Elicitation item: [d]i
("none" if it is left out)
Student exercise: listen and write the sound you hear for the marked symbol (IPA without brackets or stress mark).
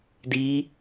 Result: d